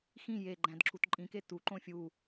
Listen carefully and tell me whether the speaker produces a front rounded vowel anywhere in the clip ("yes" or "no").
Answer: no